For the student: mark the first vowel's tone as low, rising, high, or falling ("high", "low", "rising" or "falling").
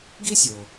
high